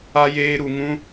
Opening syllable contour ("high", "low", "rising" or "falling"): high